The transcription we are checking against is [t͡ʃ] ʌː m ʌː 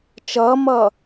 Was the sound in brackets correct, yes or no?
yes